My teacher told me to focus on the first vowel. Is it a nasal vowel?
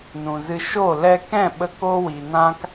yes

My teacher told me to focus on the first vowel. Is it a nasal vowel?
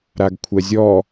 no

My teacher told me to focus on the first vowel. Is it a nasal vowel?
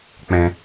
yes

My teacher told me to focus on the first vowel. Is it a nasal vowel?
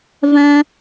yes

